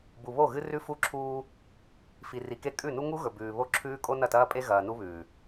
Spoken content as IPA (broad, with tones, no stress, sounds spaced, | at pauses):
b u˨ β o˦˨ ɣ ɨ˦ r ʉ˦ f u˦ ǁʰ uː˦ | f i˨ r i˨ k e˦ kʼ ʉ˦˨ n u˦ ŋ u˦ ɣ ɵ˨ b ʉː˨ β o˦ ǁʰ ʉː˦ kʼ o˦ n ɐ˦˨ t ɐː˦ pʼ e˦ ɣ ɐː˨ n u˦ β ʉː˨